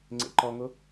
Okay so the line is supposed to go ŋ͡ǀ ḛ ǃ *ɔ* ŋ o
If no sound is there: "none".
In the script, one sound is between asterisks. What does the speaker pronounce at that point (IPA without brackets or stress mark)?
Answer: ɔ